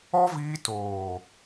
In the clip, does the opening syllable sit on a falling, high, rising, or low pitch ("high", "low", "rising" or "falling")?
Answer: high